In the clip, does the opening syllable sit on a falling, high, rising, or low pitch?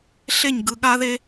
falling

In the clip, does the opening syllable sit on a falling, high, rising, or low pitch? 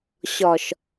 low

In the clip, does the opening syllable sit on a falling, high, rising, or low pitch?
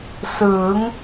rising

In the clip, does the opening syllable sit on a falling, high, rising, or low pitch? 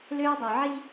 high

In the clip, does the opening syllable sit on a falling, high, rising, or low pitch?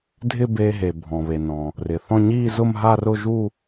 falling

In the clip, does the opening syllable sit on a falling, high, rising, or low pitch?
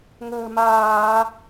low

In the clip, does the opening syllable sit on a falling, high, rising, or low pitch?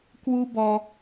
high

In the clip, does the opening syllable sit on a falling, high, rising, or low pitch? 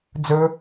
high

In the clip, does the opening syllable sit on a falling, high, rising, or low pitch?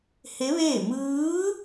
rising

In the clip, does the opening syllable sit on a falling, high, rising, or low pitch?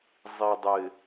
low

